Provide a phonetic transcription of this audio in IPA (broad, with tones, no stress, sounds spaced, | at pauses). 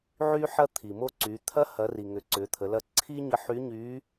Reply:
ʕ y˧ ħ ɐ˧ t̪ʰ i˩ m o˧ ǀ y˩˧ t̪ʰ ɐ˧˥ h ɐ˩˧ r i˩ ŋ ʏ˩˧ ǀ ʏ˩˧ t̪ʰ ə˩˧ l ɐ˧ ǀʰ i˥ ɲ ə˧˥ ħ y˧˥ ɲ y˧˥